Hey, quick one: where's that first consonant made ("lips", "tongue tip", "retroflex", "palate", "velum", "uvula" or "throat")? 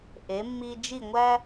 throat